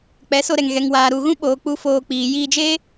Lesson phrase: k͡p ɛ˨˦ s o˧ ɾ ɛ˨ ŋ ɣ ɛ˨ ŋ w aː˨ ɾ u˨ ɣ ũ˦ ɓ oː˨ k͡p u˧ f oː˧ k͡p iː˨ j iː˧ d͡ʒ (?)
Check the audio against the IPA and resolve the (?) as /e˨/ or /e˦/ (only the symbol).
e˦